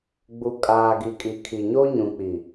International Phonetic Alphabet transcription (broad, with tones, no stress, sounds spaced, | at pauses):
ɡ͡b u˨ kʼ aː˨ ɡ i˨ kʼ i˨ kʰ i˨ ɲ o˦ ɲ ũ˨ k͡p i˨